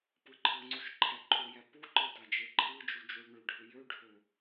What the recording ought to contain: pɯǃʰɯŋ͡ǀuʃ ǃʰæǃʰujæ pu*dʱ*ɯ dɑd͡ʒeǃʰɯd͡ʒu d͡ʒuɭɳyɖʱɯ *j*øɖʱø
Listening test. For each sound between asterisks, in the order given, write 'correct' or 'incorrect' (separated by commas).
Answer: incorrect, correct